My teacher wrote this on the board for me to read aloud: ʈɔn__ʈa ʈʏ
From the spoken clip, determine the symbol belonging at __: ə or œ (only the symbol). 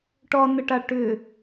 ə